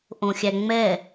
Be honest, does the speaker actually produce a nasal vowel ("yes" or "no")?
yes